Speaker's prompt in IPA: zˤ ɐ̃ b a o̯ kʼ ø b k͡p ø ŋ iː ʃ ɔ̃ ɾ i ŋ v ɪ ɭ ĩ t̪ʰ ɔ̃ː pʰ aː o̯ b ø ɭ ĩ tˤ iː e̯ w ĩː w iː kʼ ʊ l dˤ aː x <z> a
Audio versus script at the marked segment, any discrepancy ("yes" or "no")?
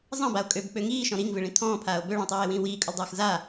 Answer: no